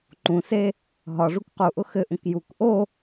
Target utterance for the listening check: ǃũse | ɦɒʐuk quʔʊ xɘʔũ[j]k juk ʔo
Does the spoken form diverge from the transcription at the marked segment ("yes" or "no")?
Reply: yes